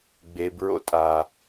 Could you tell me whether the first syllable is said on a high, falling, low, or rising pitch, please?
low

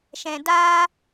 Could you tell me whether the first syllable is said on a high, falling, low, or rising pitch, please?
low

